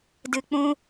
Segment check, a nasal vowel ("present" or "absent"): present